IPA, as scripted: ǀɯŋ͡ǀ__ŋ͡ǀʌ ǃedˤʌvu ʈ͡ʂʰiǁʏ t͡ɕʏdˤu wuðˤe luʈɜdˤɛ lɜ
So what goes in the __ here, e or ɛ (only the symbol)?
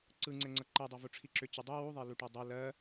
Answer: ɛ